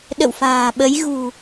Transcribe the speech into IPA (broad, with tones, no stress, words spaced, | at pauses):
ɗə̰˧˨wfa̤ː˨˩ɓə˨˦j ɣṳ˨˩